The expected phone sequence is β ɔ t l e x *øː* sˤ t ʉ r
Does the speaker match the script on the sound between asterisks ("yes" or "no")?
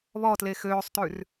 yes